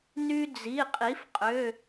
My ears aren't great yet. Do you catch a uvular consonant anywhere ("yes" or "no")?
yes